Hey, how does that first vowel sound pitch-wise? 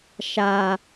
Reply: low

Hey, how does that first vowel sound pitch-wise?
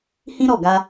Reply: high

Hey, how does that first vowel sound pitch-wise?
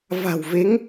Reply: low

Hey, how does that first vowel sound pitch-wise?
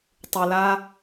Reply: low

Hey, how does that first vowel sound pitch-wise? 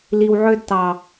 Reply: low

